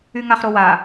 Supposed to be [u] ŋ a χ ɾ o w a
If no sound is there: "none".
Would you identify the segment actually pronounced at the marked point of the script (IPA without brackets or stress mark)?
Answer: y